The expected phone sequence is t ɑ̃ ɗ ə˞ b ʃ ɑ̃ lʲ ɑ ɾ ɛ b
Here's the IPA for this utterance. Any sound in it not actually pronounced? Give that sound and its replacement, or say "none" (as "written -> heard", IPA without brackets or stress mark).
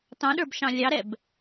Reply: none